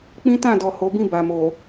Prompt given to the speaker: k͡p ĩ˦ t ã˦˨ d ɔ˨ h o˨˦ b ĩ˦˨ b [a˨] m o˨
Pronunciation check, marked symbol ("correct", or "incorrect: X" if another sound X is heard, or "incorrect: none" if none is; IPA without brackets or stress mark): correct